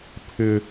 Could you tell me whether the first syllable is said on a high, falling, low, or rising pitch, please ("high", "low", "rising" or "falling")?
high